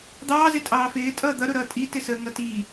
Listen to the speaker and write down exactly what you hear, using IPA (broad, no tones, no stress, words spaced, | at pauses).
d̪ɑːzɪ tʼɑːfɪː tʼʌːd̪ʌɾʊɾʌː tʼitɪsəː ŋʌtiː